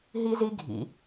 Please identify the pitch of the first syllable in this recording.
high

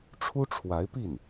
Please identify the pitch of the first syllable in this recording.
high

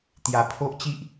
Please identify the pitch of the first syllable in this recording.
low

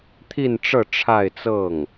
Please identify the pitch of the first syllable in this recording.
falling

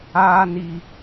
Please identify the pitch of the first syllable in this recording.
high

